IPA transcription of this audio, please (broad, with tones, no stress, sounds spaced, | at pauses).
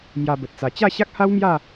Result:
m j a˧ b ə˨ t̚ t͡s a˨˩ t͡ɕ a˥˧ ɕ a˦ k̚ h a˦ w m j a˥˧